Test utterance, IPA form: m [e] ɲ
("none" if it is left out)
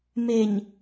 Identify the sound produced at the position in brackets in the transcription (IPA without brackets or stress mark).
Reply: e